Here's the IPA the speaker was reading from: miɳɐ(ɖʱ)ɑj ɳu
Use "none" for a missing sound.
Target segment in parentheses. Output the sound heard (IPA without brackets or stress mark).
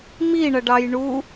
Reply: ɖ